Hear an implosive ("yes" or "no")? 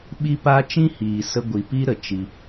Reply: yes